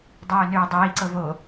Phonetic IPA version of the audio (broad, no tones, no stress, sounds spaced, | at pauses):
dˤ øː n øː dˤ iː ǀ ɤ v o